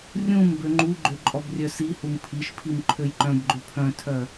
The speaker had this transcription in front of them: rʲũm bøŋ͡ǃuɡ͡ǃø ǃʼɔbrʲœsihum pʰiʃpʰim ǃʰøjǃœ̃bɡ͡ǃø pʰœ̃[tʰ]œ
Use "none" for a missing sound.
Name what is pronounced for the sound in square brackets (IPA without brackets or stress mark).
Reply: tʰ